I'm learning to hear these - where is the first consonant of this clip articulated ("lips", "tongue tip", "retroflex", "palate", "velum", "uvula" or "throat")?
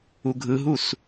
velum